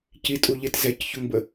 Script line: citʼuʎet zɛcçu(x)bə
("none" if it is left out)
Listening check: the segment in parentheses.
ŋ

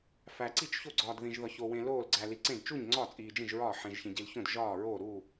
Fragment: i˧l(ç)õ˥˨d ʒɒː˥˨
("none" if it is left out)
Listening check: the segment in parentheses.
ç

